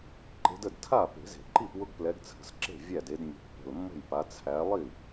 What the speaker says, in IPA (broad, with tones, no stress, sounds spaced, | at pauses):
ǃ e̤˨˦ d ə˥˩ d tʰ a˥˩ p e̤˨˩˦ z e̤˨˩˦ ǃ i˥˩ p w ʊ˦ ɡ p l ɛ˨˦ ɡ t͡sʰ ə̤˨˩ s ǁ e̤˥˩ vʲ æ˥˩ d e˨˦ d mʲ ə̤˨˦ pː ə̤˨˩ l mː ə̤˥˩ j p a˨˦ t͡sʰ æ˨˦ lˠ i˥˩